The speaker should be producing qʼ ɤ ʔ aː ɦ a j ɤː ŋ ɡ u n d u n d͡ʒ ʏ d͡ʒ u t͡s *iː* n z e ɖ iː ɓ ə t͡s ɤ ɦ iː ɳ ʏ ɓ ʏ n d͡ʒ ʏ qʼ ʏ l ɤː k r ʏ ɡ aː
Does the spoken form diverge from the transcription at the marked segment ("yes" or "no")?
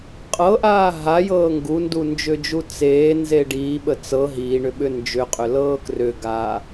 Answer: yes